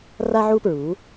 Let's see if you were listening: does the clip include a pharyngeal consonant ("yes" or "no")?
yes